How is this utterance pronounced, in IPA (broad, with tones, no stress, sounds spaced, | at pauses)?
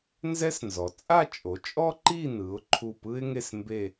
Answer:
n z ɛ˥ s n z ɔ˩˧ t͡sʼ a˥˧ t͡ʃʼ o˩˧ t͡ʃʼ ɔ˥ ǃ i˥˧ n ɯ˩˧ ʊ̯ ǃʰ u˧˩ p ɯ˥ ɪ̯ ŋ e˥˧ s m b e˥˧